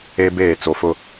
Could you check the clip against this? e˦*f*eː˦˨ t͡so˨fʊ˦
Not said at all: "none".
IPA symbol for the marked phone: b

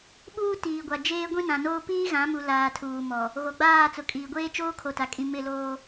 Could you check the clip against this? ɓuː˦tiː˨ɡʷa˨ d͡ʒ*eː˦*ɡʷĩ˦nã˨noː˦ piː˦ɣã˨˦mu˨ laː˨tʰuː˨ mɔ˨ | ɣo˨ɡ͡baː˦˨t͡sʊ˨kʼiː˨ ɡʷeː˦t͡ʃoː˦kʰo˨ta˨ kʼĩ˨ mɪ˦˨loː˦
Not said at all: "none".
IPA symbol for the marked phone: eː˦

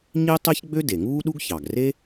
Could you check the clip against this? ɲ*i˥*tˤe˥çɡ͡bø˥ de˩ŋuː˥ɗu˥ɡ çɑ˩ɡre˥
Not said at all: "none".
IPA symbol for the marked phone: i˥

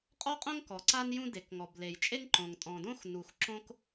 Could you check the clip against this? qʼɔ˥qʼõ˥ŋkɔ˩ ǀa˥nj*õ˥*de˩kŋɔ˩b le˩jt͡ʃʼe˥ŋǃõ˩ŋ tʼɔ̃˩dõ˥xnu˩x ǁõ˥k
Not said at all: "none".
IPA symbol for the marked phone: ũ˥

